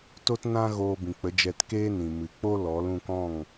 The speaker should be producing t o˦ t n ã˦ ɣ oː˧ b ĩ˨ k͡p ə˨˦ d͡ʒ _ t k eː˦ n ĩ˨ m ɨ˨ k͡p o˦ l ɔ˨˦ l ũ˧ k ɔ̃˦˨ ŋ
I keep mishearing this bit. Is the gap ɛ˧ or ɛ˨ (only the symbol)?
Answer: ɛ˧